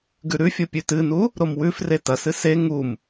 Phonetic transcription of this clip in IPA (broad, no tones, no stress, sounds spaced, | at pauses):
ɡ ʉ ɾ ʉ fʲ o pʲ ʉ t ɨ n u | ɾ o m w ʉ f r e t ɐ s ɨ s e ŋ u m